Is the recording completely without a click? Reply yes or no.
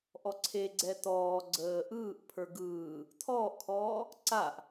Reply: no